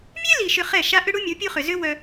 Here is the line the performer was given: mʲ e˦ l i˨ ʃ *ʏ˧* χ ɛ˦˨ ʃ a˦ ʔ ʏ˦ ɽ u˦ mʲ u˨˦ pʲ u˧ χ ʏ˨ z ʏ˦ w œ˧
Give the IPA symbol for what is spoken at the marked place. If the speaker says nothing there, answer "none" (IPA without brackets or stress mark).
ʏ˧